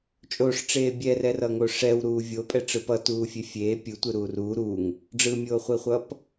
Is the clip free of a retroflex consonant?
no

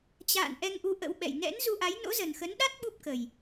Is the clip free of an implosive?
no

